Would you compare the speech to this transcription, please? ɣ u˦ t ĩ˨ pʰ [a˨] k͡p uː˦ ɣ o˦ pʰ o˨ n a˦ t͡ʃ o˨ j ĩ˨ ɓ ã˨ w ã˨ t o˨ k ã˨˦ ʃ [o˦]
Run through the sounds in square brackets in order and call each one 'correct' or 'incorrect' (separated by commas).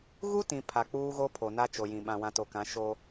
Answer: correct, correct